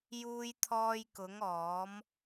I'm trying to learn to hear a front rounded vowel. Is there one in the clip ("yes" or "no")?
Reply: no